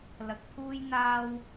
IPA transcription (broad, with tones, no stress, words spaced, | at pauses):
lɐ˧k̚pʰuː˥jn̪aː˥w